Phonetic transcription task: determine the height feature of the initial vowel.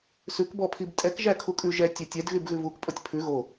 high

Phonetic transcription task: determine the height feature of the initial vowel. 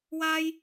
low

